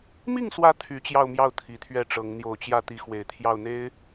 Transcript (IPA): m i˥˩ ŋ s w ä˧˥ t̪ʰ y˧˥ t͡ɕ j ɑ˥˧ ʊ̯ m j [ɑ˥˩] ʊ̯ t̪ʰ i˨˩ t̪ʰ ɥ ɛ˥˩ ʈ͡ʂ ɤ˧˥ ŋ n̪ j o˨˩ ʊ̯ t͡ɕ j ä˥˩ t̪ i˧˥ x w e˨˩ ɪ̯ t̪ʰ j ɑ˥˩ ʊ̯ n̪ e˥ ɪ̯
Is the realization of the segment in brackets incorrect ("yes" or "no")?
no